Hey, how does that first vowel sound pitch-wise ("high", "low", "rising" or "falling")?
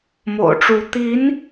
low